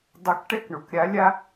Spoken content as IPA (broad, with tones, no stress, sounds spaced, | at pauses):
dˤ ɐ˨˥ k ʈ ɛ˦˨ k ɳ o˩ k ɾʲ a˨˥ lʲ a˦